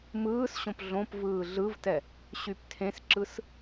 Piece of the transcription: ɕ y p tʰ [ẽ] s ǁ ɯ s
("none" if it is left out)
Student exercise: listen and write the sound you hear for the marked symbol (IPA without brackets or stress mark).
ẽ